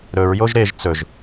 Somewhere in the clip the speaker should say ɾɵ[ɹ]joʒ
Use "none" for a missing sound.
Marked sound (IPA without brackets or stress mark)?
ɹ